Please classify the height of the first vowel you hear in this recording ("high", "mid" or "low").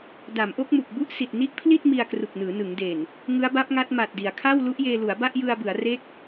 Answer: low